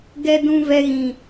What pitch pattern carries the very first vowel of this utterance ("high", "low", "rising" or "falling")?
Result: high